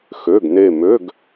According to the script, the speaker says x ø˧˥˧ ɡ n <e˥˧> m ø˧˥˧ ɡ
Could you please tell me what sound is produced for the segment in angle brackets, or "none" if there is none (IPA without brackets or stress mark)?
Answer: e˥˧